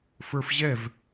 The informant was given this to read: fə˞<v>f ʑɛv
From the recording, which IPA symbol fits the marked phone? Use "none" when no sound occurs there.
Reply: none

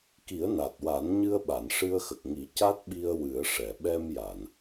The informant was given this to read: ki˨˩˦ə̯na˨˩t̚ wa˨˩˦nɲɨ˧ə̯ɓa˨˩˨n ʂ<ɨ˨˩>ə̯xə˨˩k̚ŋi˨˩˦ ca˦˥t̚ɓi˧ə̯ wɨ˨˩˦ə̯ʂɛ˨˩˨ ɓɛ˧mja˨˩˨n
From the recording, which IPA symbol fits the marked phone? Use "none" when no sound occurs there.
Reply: ɨ˧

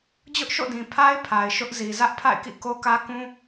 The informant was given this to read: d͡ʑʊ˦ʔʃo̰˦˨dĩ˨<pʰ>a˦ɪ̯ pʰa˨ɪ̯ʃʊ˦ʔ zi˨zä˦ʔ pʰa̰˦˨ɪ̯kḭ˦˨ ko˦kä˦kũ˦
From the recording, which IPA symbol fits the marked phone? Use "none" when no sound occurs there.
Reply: pʰ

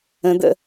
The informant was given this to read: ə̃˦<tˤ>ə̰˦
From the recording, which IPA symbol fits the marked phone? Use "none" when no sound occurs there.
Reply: d̪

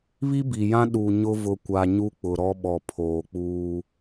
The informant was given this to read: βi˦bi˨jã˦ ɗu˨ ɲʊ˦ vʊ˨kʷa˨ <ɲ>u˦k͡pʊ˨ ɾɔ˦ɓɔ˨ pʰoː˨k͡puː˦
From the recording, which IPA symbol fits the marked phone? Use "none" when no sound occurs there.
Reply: ɲ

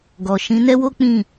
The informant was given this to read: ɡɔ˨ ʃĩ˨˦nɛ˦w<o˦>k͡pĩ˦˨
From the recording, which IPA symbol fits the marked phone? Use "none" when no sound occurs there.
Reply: o˦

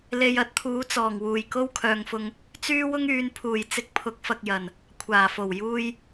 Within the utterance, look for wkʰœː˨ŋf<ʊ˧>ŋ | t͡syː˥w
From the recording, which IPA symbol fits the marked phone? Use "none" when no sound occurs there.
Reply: ʊ˧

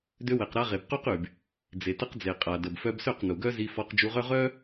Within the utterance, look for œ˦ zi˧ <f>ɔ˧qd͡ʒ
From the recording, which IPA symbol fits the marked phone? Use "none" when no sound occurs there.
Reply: f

